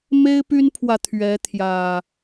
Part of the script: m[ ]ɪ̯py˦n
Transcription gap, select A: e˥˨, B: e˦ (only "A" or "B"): B